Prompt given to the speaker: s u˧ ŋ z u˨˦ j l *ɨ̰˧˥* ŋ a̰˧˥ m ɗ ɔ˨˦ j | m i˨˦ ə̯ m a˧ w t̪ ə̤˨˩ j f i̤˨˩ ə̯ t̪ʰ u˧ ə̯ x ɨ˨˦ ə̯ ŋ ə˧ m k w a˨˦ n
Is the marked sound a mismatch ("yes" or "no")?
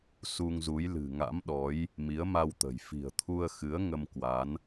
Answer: yes